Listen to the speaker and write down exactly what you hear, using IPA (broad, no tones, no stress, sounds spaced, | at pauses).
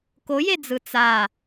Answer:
k o j e d͡z ɯ t͡s a